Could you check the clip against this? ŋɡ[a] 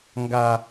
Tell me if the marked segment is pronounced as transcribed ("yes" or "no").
yes